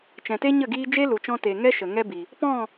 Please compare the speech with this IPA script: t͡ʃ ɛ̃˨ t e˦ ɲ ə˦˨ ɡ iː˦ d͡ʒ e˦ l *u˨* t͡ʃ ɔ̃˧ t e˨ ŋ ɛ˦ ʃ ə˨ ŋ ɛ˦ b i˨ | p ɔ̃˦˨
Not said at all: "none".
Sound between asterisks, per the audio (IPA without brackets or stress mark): u˨